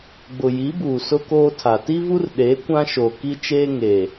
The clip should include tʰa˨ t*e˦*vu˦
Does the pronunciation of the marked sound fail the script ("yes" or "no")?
yes